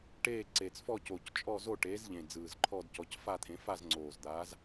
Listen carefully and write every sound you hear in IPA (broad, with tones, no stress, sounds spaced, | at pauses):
ʈ eː˥˧ ǀ e˨˩ t͡s f ɔ˥˧ c oː˨˩ c t͡ʃʼ ɔ˥˧ z o˥˧ ʈ eː˨˥ z ʎ ẽ˨˩ d͡z ɯː˨˩ z ǃʰ ɔ˥˧ d c ɔ˨˥ c f a˥˧ t̪ʰ ẽ˨˥ f a˥˧ z ŋ͡ǀ oː˨˩ z d̪ aː˨˥ z